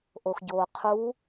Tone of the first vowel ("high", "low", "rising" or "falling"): low